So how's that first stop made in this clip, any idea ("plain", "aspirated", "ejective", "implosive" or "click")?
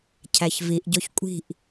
aspirated